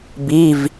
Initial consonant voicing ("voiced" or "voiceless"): voiced